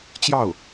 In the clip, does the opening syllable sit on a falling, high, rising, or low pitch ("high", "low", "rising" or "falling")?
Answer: falling